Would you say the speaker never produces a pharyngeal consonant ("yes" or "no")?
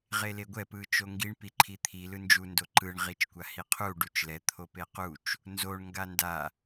yes